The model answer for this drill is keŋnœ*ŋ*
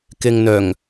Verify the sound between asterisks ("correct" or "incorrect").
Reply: correct